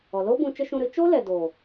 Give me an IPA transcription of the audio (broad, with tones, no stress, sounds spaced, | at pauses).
ɔ˨ l o˦ b ũ˧ t͡ʃ ə˦ ʃ ũ˧ ɾ ɨ˨˦ t͡ʃ o˦ l ɛ˨ d o˨